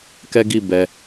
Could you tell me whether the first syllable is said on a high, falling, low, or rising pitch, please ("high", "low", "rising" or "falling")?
high